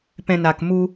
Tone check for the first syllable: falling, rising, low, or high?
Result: low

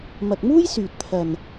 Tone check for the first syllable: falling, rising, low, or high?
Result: low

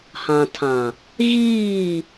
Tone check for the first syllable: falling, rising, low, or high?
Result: low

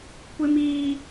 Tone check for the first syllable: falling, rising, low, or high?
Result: high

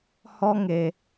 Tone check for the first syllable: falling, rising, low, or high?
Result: high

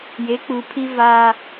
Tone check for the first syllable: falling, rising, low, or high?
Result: rising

